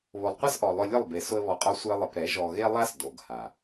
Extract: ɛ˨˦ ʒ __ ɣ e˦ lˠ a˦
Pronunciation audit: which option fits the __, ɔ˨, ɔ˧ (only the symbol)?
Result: ɔ˨